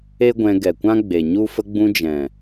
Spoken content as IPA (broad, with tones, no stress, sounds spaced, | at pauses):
e˦ ɡʷ ɛ̃˧ ɡ ɛ˨ kʷ ã˦ ɡ͡b e˨ ɲ u˦ f ə˧ ɡ͡b ũ˧ d͡ʒ ɛ̃˨